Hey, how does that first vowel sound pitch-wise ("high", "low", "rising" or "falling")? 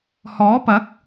rising